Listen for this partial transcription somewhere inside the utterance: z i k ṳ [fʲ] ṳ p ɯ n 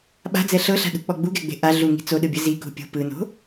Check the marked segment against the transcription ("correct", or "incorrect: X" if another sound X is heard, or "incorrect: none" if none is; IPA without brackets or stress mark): incorrect: pʲ